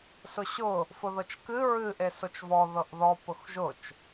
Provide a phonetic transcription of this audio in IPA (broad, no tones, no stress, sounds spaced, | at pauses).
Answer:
s ʊ ɕ ʊ | f ʊ ð ɤ t͡ʃ k ɨ ɹ ɨ ʔ e s o t͡ʃ v ɔ ð ɤ ʔ ð ɔ p ʊ x ʒ ʊ t͡ʃ